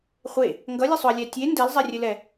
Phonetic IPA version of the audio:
χʷ e | ŋ ɡ ʌ lʲ ɘ sˤ ʊ ɐ̯ lʲ æ tʲ e n d ɛ l zˤ ɛ rʲ ɘ l ɛ

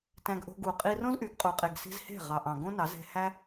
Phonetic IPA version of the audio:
t æ̃˧ ɡ ʔ o̤˧ ɡ u˨ qʼ i˧ r õ˦ z ʔ y˨ ɡ qʼ u˨ qʼ e˨ ɡ s i̤˧ z h e̤˦˨ ʁ ɑ˨ ʔ ɑ̃˨ ɡ õ˦ n ɑ˨˦ z e̤˧ h æ˦

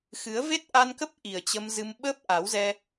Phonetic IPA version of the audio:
x ɨ˨˦ ə̯ v e˦˥ t̚ ʔ a˧ n k ə˦˥ p̚ ʔ i˨˩ ə̯ t͡ɕ ə˧ m z ɨ˧ m ɓ əː˦˥ p̚ ʔ a˨˦ w z ɛ˧

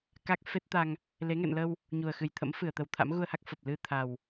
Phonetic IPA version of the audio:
k a˦˥ k̚ f e˦˥ t̚ t̪ a˧ ŋ | l e˨˦ ŋ ɛ̰˧˨ n l ə˧ w | ɲ u˨˩ ə̯ x ɨ˨˩ j t̪ʰ ə̰˧˥ m f ɨ˧˩ ə̯ t̪ ə˨˩ w t̪ʰ a̰˧˥ m ɣ u˧ ə̯ h a˦˥ k̚ f ə˨˩ p̚ l ɨ˧ t̪ʰ a˨˩ w

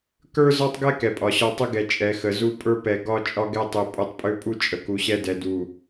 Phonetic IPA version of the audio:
k ə˞˦ z ɒ˦ tˤ ɡ ɛ˦ k ɛ˨ pʼ ɒ˨ ɕ ɒ˦ tˤ ə˦ ɡ ɛ˨ t͡ʃʼ ɛ˨ x ə˨ z u˦ pʼ ə˞˦ p ɛ˨ ɡ ɒ˦ t͡ʃʼ ɒ˦ ɡ ɛ˦ tˤ e˨ pʼ u˨ tˤ pʼ ø˦ pʼ u˦ t͡ʃʼ ə˨ k u˨ ɕ ɛ˦ d ɛ˨ d u˨

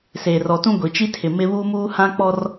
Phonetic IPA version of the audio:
s eː˨ r ɔ˨ t ũ˦ ɡʷ i˨ t͡ʃ i˦ tʰ ɪ˨ m ɪ˦ β uː˦ m uː˦ h ã˦ k͡p ɔ˦ r

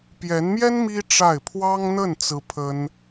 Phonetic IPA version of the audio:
p j ɛ˧˥ n m j ɛ˥ n m i˥ ʈ͡ʂ a˥˩ ɪ̯ pʰ w ɑ˥ ŋ n̪ ə˥˩ n t͡s ɹ̩˥ pʰ ə˥ n

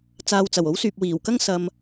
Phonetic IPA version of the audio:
t͡s aː˨ w t͡s ɐ˨˩ w o˨˥ w s yː˨ p̚ w iː˨˩ w k ɐ˥ ŋ s ɐ˨ m

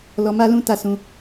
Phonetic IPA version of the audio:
l ɔ˧ m a˦ l ũ˦ t a˦˨ s ũ˧

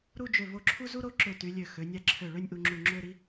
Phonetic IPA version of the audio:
ɾ u˥˧ d͡ʒ ø˧˩ v o˧ ǁʰ u˥ z u˥ ɾ o˥˧ ǁ ø˧˩ t y˩˧ lʲ ø˧˩ x ø˩˧ nʲ æ˧ ǁʰ ø˧˩ ɭ ø˥˧ nʲ ʔ u˧ ŋ͡ǁ u˧˩ ŋ͡ǁ ø˥˧ ɾ i˥

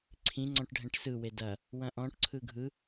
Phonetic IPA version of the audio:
ǀʰ ĩ ŋ͡ǀ ɔ̃ ʈ ɖʱ ɛ̃ ʈ s ɯ w e d ɐ | w ɐ̃ ʔ ɔ̃ ʈ ǀʰ ɯ ɡʱ ɯ

